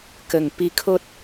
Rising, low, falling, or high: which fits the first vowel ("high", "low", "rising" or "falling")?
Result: low